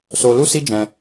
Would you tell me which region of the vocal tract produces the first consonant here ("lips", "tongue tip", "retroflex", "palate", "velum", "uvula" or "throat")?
tongue tip